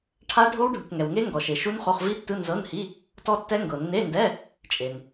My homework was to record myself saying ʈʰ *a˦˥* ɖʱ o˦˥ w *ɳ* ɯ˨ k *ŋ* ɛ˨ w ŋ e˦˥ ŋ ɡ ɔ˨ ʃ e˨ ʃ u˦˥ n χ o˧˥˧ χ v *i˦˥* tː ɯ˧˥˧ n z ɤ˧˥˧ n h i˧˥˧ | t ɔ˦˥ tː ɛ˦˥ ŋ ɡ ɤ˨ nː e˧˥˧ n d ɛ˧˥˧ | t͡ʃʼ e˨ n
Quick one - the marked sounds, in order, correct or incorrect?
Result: correct, incorrect, correct, correct

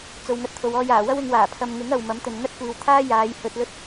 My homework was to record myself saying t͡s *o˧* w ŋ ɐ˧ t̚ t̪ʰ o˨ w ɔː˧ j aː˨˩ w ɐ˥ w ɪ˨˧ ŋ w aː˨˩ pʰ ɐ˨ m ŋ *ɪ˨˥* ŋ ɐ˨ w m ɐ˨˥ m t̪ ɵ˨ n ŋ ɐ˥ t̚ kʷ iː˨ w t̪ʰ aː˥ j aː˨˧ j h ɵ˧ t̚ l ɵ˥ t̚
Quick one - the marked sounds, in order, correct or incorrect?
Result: incorrect, correct

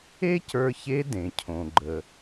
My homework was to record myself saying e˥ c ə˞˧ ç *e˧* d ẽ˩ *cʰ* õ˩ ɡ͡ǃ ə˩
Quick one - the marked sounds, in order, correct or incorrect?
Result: incorrect, correct

